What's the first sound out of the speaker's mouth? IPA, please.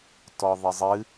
t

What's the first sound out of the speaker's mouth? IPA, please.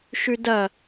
ʃ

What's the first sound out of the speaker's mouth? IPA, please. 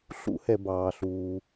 ɬ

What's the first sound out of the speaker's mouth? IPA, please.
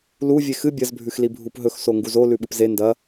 l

